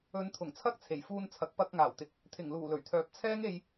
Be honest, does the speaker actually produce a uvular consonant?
no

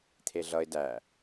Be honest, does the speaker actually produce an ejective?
no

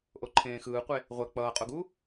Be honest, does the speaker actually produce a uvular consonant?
yes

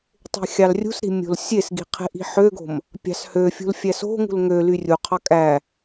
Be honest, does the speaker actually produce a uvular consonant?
yes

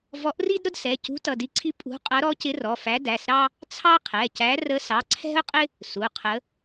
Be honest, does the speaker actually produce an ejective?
yes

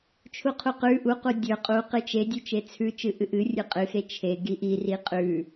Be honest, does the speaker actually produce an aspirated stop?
yes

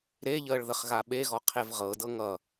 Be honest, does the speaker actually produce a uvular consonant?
yes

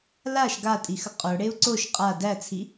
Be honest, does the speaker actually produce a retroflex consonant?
yes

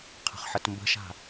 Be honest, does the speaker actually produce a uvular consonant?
yes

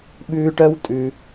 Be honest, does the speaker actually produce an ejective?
yes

